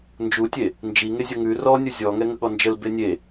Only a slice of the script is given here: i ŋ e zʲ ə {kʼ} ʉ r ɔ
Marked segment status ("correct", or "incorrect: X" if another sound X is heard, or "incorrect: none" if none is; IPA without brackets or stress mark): incorrect: ŋ